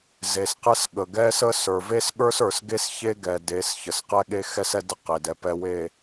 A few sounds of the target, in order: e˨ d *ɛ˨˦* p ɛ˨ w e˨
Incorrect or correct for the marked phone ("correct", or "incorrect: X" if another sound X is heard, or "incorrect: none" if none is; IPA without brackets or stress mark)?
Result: incorrect: ɛ˨